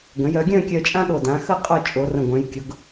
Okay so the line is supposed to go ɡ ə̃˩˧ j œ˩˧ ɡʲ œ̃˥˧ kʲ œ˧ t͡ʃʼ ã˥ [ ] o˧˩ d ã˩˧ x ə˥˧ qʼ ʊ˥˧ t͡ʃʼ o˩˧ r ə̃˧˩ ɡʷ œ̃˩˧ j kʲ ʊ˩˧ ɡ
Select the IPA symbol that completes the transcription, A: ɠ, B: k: A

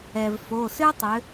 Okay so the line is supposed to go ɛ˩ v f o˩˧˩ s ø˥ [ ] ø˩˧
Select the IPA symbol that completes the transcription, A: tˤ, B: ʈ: A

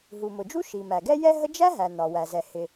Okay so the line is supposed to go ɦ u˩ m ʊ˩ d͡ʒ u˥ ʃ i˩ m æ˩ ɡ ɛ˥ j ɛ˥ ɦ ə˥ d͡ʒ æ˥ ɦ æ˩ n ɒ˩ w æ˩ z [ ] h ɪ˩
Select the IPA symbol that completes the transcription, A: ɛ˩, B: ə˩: A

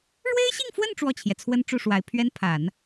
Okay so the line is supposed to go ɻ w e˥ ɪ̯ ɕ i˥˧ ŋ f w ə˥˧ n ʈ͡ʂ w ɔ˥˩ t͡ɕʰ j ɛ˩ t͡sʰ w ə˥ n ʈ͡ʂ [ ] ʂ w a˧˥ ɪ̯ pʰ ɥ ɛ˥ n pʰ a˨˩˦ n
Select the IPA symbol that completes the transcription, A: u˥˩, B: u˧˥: A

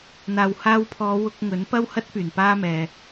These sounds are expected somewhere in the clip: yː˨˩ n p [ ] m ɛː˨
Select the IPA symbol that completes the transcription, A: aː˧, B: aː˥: B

